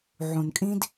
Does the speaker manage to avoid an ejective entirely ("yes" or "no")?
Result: no